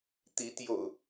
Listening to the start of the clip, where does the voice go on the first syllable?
rising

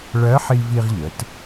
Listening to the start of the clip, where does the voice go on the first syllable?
rising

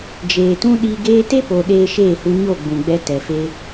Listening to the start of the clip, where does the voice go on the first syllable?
low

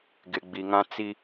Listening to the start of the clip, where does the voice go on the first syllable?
low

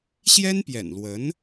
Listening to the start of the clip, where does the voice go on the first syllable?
high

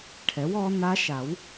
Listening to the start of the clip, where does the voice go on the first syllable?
rising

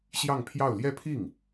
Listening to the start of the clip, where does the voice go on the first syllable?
falling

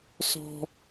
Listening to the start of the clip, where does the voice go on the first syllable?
high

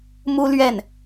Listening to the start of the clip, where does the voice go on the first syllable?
high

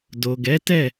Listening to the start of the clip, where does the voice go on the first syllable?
low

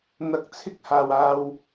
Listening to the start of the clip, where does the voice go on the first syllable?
rising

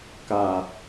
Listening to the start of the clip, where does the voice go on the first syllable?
low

